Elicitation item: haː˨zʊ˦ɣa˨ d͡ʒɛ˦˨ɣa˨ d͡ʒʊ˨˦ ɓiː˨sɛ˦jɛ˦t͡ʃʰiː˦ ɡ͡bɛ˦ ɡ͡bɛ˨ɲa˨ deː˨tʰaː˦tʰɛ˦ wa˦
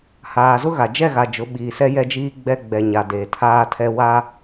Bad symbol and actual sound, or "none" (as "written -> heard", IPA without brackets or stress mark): t͡ʃʰ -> d͡ʒ